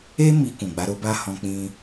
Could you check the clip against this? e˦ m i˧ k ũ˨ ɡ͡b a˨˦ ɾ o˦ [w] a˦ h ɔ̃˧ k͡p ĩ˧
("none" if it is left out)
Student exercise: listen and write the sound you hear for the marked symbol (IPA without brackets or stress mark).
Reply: b